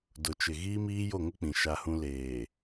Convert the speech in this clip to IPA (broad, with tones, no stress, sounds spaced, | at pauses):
d ʊ˨ t͡ʃ ɪ˨ ɣ iː˦ m iː˦ j o˦˨ ŋ ʊ˦ k͡p ĩ˨ ʃ a˦ h ũ˦ l eː˨